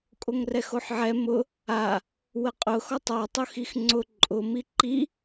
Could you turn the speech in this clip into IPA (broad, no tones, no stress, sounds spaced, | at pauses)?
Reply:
kʼ o ŋ r ɛ x o ħ ʕ ɛ m ʊ | a | w ə qʼ ʊ x ɔ tˤ ɔ tˤ o x i x ŋ͡ǀ ʊ ǃʼ ʊ m i ǃ i